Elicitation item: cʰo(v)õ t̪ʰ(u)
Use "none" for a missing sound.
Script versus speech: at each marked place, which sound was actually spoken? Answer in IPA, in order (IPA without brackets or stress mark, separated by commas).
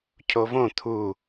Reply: v, u